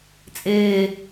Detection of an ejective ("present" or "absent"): present